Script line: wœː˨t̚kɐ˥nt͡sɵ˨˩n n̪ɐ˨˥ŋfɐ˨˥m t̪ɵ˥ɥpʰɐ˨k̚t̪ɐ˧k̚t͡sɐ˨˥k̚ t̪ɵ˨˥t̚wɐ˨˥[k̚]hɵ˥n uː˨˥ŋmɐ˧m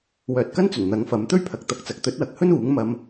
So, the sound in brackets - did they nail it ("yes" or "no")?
yes